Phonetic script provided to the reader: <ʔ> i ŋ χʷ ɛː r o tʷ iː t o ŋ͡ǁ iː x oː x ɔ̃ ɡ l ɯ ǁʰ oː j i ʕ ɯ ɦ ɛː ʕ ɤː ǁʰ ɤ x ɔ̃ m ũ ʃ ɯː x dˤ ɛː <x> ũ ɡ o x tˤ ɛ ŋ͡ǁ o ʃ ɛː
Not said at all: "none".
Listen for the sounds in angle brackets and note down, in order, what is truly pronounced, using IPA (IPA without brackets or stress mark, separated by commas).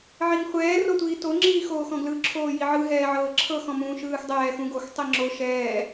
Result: ʕ, x